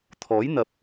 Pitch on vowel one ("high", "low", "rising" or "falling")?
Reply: rising